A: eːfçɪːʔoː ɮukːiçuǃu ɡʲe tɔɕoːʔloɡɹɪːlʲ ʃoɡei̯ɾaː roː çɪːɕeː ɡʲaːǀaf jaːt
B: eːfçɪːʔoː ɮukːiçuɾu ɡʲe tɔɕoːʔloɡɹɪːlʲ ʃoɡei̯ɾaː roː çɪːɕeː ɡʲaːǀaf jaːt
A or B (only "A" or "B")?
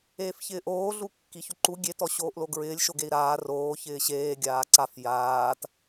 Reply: A